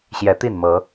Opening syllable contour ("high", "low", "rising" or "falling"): rising